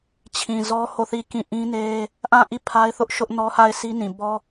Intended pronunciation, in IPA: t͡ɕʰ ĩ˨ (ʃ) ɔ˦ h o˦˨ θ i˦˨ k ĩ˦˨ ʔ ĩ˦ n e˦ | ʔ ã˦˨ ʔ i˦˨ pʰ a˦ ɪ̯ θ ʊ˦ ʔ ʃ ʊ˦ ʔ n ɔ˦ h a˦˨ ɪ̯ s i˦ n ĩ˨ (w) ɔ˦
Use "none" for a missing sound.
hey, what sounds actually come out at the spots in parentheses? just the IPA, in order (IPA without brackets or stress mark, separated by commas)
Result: z, b